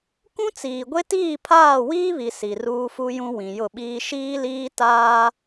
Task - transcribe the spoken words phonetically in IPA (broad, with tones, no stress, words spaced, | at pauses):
kũ˦t͡siː˨ɡʷe˦ tiː˦˨pʰaː˦˨wiː˦βi˨ si˨ruː˦fu˦jũ˦ wĩ˨jʊ˦˨ɓiː˦ ʃiː˦liː˦taː˦